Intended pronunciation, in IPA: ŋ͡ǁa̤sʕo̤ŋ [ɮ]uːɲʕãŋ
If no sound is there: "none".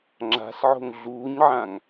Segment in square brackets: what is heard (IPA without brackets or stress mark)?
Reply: ɮ